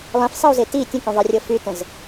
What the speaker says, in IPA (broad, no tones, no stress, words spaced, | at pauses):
lˠẽfsˤeu̯ze ti tʲə̃kũðˤerʲɤ fytə̃z